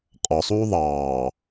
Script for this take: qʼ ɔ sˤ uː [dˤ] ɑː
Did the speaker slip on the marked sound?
yes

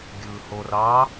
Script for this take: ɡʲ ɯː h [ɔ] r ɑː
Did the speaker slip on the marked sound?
yes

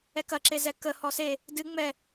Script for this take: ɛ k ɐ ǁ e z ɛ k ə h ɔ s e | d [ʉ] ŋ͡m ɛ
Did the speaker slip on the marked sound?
yes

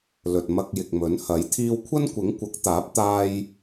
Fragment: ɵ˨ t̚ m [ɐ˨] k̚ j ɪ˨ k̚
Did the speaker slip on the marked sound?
yes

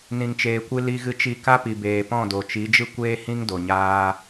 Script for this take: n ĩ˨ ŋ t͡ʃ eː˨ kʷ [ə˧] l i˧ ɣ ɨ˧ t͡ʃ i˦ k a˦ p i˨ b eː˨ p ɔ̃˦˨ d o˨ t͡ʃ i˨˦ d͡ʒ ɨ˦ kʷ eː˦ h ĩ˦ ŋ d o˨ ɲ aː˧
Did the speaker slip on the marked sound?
yes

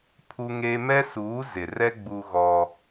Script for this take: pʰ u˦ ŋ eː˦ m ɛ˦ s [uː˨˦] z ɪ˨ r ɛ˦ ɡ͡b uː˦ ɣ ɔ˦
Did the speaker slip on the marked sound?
no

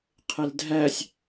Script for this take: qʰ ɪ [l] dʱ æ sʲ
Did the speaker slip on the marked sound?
no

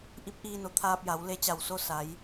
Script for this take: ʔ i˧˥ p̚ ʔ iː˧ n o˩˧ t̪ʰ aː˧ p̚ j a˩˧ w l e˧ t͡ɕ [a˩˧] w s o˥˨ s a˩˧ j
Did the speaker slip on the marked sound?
yes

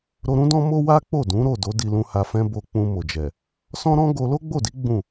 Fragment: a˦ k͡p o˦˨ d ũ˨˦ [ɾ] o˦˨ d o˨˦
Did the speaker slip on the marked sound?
no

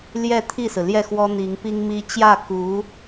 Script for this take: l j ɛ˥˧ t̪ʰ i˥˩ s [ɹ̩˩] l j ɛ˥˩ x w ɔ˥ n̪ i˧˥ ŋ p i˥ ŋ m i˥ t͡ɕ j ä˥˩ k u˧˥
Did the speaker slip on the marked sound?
no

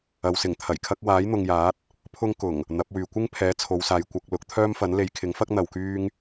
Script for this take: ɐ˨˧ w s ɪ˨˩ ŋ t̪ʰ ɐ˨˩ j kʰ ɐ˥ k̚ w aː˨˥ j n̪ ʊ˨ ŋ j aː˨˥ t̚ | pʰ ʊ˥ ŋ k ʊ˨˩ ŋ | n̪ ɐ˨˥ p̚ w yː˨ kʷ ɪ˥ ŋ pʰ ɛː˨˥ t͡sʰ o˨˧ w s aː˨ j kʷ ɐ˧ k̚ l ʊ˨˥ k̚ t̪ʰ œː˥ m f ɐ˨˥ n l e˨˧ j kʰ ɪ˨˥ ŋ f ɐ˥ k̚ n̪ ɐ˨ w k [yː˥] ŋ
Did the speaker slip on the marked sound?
no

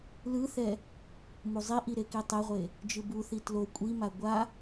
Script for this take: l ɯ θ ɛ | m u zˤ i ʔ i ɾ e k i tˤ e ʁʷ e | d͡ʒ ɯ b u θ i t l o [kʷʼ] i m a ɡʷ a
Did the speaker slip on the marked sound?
no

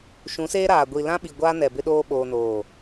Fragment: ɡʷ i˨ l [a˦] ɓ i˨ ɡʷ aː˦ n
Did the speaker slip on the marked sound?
yes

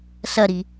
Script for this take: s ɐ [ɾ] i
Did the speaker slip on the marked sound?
no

